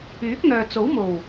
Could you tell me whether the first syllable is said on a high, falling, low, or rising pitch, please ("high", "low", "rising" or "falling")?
rising